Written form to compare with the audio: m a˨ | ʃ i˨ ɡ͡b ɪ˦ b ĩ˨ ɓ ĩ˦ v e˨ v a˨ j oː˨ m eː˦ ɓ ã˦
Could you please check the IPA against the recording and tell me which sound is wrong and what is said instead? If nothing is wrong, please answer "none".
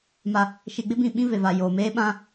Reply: none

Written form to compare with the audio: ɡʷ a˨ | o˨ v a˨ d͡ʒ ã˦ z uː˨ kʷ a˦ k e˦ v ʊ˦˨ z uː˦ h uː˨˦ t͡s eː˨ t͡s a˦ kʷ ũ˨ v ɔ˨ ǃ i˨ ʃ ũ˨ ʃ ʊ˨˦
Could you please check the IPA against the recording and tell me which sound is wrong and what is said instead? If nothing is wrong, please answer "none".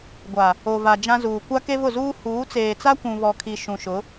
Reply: ǃ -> kʰ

